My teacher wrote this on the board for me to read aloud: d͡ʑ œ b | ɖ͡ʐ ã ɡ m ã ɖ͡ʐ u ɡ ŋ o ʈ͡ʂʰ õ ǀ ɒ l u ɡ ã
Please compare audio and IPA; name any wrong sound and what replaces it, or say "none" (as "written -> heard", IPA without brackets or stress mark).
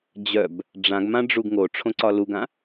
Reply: none